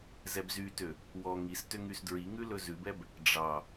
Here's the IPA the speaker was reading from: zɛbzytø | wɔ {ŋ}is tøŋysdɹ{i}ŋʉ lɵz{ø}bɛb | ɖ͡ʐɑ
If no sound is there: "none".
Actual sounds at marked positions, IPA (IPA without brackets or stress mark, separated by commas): ŋ, i, ʉ